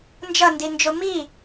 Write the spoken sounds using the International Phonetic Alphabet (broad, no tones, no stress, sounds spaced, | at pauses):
n d͡ʒ ʌ n d i n d͡ʒ o m i